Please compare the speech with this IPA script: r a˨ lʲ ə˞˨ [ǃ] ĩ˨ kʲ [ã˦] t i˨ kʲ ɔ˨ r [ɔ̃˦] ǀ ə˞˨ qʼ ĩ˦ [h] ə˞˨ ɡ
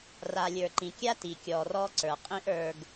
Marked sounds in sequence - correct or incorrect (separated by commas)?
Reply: correct, incorrect, incorrect, incorrect